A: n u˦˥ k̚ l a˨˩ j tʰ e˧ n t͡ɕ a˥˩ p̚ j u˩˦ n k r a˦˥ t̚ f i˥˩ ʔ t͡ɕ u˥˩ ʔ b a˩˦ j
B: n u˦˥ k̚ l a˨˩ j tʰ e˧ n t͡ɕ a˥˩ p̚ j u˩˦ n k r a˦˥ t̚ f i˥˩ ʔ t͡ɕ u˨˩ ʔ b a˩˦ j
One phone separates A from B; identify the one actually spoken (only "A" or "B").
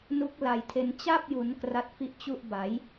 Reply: A